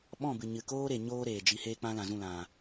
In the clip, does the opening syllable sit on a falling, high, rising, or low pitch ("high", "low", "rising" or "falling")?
falling